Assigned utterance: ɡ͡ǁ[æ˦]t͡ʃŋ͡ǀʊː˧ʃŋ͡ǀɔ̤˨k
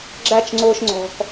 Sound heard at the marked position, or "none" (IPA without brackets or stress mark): æ˦